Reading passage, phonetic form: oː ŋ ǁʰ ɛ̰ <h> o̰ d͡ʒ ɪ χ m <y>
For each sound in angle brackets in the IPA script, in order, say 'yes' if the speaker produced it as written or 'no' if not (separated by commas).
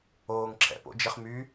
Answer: no, yes